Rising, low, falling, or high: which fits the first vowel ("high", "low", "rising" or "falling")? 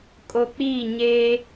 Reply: low